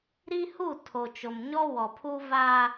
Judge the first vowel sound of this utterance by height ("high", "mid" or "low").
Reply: high